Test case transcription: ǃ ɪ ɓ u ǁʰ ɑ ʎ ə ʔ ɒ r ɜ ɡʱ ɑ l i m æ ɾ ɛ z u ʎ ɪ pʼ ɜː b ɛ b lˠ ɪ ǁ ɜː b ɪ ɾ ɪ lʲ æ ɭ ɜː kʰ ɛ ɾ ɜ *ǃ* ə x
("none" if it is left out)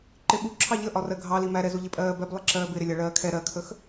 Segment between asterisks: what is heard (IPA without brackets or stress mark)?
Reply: kʰ